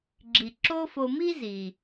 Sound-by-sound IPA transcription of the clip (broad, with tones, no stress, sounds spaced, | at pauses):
ɡ͡ǁ i˩ ǁ o˦ f o˨ m i˥ z i˩